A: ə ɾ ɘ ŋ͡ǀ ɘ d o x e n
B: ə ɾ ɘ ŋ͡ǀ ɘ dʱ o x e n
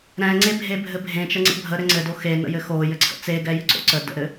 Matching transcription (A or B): A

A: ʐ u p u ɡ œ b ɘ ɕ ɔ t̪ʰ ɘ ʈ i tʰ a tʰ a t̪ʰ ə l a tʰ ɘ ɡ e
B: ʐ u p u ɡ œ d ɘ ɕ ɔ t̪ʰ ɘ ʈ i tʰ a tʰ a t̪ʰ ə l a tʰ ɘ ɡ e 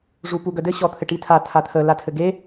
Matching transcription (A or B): B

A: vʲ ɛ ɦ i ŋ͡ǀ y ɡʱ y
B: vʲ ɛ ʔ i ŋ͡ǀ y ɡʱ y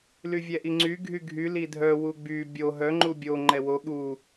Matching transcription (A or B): B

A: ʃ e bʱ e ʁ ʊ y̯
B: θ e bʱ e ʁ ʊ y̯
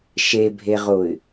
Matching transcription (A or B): A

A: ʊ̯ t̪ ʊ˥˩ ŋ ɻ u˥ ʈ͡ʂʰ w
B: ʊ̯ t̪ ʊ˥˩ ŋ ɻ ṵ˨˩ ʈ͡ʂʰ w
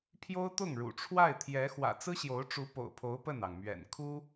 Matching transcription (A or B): B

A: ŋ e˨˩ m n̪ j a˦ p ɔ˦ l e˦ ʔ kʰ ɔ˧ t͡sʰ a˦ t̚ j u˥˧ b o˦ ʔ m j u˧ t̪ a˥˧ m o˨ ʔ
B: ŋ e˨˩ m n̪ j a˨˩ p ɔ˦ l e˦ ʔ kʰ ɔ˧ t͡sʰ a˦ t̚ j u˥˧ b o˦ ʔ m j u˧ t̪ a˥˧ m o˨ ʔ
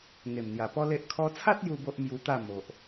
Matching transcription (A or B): B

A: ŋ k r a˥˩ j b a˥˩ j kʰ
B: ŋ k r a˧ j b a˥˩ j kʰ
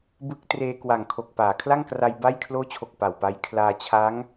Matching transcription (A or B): B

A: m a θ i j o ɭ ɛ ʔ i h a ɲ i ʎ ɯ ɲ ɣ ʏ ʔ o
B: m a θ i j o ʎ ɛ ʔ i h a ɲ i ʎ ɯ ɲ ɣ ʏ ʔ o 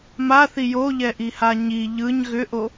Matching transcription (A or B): B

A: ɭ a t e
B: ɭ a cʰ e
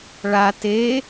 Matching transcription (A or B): A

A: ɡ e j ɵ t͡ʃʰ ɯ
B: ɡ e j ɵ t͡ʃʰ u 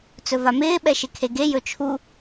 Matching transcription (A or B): B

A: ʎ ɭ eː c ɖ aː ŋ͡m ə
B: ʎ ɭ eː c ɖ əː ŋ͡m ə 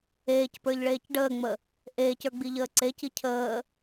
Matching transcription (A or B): B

